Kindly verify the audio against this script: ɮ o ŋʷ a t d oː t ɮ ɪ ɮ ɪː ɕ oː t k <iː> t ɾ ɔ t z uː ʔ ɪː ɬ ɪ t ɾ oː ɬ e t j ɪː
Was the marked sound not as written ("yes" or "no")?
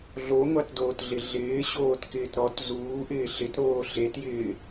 yes